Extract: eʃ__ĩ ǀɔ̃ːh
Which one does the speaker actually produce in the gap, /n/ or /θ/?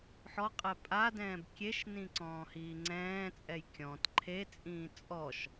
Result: n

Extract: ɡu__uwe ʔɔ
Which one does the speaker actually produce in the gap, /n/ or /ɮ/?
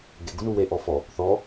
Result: n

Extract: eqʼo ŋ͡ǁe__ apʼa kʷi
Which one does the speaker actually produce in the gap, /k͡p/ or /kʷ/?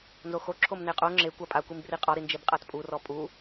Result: kʷ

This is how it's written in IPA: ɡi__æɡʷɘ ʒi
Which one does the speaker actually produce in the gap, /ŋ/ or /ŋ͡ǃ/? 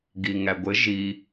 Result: ŋ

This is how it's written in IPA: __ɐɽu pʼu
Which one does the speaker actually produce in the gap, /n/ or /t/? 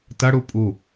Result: t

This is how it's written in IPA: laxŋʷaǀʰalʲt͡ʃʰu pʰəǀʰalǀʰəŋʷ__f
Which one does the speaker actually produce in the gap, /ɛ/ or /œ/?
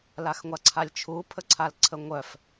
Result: œ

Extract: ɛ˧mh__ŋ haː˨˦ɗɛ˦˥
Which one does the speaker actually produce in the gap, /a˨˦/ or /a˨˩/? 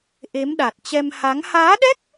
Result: a˨˦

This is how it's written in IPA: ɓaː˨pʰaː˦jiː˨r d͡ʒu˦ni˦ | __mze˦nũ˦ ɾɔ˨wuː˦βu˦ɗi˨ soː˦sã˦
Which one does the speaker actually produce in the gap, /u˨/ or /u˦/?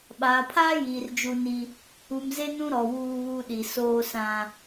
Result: u˨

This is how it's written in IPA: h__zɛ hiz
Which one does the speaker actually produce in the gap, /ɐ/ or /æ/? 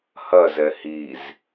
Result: ɐ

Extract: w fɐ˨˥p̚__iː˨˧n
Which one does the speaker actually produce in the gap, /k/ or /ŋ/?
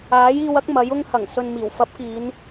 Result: k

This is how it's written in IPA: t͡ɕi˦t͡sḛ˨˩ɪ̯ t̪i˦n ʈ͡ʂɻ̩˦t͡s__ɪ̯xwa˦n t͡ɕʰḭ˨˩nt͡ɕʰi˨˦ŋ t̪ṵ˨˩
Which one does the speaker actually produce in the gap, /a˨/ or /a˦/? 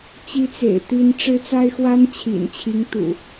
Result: a˦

